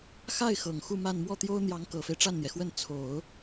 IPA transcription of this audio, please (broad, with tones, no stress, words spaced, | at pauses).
xa˥˩ɪ̯xɤ˨˩ŋ xu˥˧ma˥˧n mwɔ˥˩t̪jo˥ʊ̯ n̪jɑ˧˥ŋkɤ˨˩fe˦ɪ̯ ʈ͡ʂa˥˩nn̪jɛ˩xwə˥˩n t͡sʰo˨˩˦ʊ̯